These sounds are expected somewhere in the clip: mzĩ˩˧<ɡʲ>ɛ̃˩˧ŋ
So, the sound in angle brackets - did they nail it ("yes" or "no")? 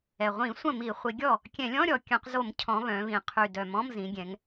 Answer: yes